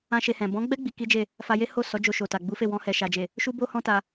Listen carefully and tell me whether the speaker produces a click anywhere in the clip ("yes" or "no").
no